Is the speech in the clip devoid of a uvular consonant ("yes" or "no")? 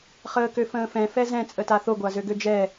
no